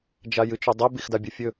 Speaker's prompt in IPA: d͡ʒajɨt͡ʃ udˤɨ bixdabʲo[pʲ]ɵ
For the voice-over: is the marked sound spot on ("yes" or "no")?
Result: no